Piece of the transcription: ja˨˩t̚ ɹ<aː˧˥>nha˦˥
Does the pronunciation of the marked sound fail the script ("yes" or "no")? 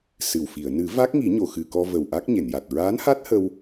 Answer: no